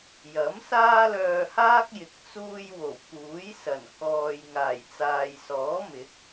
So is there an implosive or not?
no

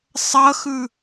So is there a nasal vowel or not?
no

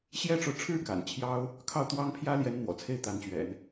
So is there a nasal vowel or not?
no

